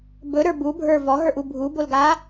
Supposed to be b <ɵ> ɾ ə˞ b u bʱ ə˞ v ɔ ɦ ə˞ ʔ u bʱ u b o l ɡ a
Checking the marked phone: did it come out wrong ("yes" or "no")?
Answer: no